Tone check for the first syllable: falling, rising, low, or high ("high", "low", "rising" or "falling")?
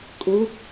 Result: rising